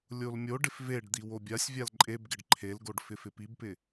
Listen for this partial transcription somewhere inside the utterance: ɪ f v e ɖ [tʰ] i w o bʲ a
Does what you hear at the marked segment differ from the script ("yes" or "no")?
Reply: yes